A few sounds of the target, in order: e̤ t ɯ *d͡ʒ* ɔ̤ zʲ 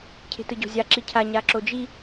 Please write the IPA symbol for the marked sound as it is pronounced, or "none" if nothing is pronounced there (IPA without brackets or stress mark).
ɟ